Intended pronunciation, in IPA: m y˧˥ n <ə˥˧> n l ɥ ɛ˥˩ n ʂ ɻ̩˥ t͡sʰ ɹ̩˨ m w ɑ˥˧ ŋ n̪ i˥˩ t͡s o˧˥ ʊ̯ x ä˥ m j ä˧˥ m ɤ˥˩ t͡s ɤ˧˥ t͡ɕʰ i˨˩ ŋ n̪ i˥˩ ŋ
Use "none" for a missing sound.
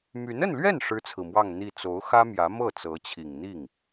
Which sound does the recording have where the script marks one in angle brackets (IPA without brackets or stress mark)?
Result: ə˥˧